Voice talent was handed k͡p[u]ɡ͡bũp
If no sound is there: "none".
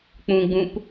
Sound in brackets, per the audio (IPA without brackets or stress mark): ũ